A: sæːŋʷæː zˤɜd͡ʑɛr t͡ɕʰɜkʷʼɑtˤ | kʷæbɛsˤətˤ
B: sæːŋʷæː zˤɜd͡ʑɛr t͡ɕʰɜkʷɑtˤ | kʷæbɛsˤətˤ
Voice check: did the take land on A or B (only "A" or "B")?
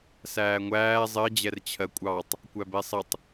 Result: A